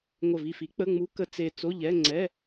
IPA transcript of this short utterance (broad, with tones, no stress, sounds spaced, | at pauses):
ŋʷ ə˧˩ v i˧˩ f i˨˥ k͡p ə˧˥˧ ŋ͡m u˨˥ k ə˨˥ t͡s e˧˩ t͡s o˧˥˧ ʎ ɛ˧˥˧ ŋ͡ǀ ɛ˧˥˧